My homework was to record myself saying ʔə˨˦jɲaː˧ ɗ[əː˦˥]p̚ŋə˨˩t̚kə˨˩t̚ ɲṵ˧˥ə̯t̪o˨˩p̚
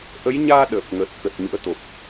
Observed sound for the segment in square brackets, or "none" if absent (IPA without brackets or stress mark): əː˨˩